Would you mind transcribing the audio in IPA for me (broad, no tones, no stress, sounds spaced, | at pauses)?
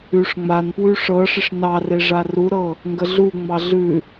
ʉ ʂ ŋ͡m a n p w ʉ ʂ ɤ ʂ ɪ ʂ n ɑ r e ʐ a r u ɾ ɤ | ŋ ɡ ə ɮ u ŋ͡m ɑ ɮ ʉ